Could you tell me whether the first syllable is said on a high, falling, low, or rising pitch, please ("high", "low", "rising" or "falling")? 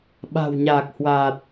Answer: low